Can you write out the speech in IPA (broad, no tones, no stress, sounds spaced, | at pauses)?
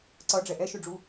ǀ ʌ ɖ͡ʐ ɛ ʔ ɛ ʃ ʉ ɖ͡ʐ u